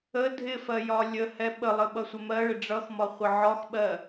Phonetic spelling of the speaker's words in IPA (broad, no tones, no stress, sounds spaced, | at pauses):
ə dʱ ɪ f ɜ j ɒ lʲ ə h ɛ ɓ ə lˠ ə ɓ ʌ sʷ ə m ɜ ɭ ɪ ɖ͡ʐ ʌ x m ɒ χʷ ɪ ʕ ɒ x ɓ ɜ